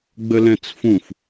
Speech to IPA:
ɡ͡bəlɛ̃t͡sfũf

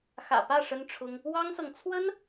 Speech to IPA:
xä̰˨˩pä˥˩ ʂə˥nʈ͡ʂʰʊ˥ŋ | wɑ˥ŋsɤ˨ŋ t͡sʰwə˥n

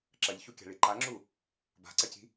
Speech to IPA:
ǁɐʎçukʲa̤ɭi ǃaŋ͡ǁu | ba̤ǀɐci̤

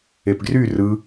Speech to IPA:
epɡry rɯ

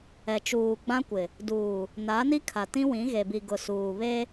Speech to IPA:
ɛ˨t͡ʃuː˨ɡ͡bã˦ kʷɪ˨ | duː˨ | na˨˦ni˦ kʰa˨tĩ˦wĩ˨˦ ɣe˨bi˨ɡʊ˨ suː˨ βe˦

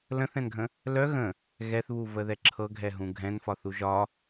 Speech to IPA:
lə̃θɛ̃nɡʱə̃ | lœ ɣə̃ | ɣɛθβuvəðɛ ǁʰɤɡʱɛɦũ ɡʱɛ̃nfɒθu ʒɒ

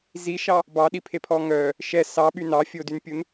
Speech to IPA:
ziʃɑ | bɑɗipʰepʰɔ ŋœ | ʃɛ sɑɓy nɑfʲodynpʲun

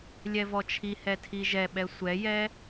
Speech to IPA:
lʲɛvɔt͡ʃʰihɛ tʰiʒɛɓɛ sʷɛjɛ

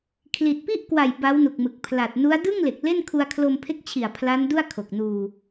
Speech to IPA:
kʰli˨˩t̚pi˥˩ʔkwa˨˩j ba˦˥wnu˨˩k̚mɯ˨˩k̚ pʰla˨˩t̚ nu˦˥a̯ dɯ˥˩ŋle˨˩k̚ le˥˩n kʰu˧a̯kʰlo˧mpʰe˦˥k̚t͡ɕʰi˨˩a̯ pʰla˦˥n du˥˩a̯kʰo˨˩k̚nuː˧

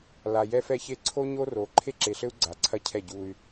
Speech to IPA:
la˨jɛ˦fɛ˦çe˦ ǀʰo˦ɲo˦ro˨˦ ǃʰe˦ǁe˨ɬɘ˦u̯ ɡ͡ǀa˨ǀʰɐ˦cʰɛ˦˨ ɟu˦y̯

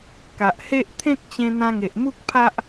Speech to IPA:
ka˨ʔhe˦ʔ t̪ʰẽ˦k̚t͡ɕẽ˧ n̪ã˧ŋe˨ʔmu˦k̚ pʰa˦ʔ

